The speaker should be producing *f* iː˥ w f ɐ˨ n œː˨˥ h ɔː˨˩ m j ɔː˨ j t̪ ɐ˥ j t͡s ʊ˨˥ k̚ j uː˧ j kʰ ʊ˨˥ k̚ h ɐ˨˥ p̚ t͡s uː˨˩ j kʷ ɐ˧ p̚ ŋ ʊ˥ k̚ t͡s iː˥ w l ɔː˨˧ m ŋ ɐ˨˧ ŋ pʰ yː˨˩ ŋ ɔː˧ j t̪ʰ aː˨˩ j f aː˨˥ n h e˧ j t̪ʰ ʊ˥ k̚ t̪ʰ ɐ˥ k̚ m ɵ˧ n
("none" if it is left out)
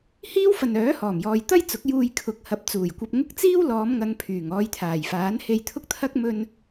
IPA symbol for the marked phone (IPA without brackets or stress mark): h